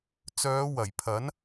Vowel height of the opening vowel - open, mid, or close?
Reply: mid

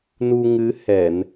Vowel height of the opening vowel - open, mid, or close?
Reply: close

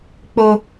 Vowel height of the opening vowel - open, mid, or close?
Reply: mid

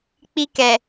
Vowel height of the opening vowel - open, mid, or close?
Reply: close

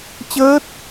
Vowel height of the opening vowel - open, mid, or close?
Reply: mid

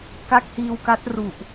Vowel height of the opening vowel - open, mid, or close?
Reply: open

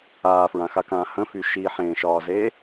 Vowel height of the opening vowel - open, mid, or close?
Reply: open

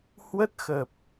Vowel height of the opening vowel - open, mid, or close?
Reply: mid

